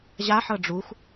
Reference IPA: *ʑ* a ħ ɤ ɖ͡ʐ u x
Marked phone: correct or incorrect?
correct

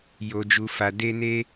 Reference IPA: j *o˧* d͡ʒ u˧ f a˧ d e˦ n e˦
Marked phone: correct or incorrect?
correct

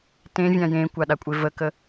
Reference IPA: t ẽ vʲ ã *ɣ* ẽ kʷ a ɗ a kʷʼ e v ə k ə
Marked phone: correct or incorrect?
incorrect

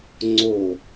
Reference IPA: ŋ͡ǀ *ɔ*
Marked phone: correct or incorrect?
incorrect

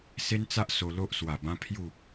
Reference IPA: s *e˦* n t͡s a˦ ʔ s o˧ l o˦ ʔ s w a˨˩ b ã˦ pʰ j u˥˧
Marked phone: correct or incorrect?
correct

